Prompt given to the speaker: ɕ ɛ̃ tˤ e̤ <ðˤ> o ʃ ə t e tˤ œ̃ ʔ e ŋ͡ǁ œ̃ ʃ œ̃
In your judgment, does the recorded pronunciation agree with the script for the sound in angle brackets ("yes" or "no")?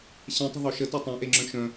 yes